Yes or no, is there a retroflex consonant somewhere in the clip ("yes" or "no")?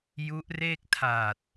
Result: no